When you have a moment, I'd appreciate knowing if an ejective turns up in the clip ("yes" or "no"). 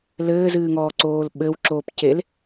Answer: no